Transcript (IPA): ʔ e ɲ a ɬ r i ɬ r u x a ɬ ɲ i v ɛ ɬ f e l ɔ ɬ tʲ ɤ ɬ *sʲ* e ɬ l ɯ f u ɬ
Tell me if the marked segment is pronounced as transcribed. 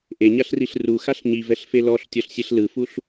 yes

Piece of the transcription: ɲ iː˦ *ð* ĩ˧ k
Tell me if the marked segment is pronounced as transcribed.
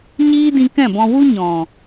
no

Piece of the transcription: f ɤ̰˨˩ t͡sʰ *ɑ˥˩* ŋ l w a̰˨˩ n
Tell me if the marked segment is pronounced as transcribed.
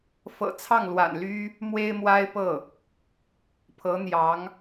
yes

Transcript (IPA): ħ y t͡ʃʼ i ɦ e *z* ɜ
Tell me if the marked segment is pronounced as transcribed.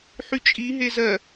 yes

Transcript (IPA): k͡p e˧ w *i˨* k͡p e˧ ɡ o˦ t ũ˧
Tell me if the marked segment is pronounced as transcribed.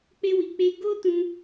yes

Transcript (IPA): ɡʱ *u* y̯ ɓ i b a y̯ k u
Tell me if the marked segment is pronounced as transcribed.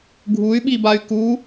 yes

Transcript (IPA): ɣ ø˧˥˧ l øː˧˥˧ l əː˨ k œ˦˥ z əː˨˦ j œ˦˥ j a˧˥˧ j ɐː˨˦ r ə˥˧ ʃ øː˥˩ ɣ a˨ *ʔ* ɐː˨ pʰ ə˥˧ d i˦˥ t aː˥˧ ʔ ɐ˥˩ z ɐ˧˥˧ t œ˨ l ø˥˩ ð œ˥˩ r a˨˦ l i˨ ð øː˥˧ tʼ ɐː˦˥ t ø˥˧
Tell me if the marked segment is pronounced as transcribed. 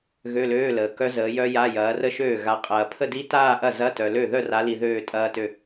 no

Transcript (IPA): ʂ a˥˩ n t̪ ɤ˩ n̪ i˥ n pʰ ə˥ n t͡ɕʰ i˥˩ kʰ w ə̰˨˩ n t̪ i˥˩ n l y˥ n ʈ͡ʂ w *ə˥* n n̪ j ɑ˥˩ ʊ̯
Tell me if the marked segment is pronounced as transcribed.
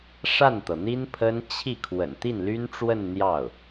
no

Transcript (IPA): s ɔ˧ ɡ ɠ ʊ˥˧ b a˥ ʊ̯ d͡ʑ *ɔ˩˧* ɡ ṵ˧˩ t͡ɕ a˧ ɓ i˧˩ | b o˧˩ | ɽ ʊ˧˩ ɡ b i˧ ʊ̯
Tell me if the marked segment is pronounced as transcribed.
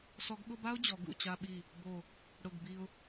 yes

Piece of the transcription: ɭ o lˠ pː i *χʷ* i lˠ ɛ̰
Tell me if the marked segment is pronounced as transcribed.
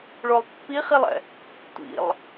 no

